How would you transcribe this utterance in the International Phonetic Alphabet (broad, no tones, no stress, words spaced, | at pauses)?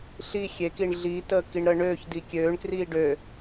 ɬi xʲek iɳɮitəː kiɳɾəːɳøːç dikʲøːɳkriː ɖø